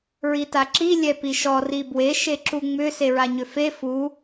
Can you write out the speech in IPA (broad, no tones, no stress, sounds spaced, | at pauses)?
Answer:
ɹ i t a ǁ i lʲ ɛ p i ʃ ɔ r i b w e ʃ e ǁ u ŋ͡m ʏ s e ɹ a ɲ ʏ f e f u